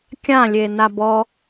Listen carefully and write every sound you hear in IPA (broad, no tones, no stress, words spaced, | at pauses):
kʲãlʲe nabɔ